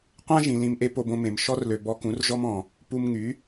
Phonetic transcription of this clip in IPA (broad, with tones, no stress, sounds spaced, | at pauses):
qʷ ã˦ ʒ ĩ˨ l ĩ˧ m ʔ e˦ p o˧ b õ˧ m ẽ˨ m ʃ ɔ˧ r l ø˨ b ɔ˧ k ũ˨˦ r ʒ ɔ˦ m ɔ̃˨ | p u˧ m ŋ y˨˦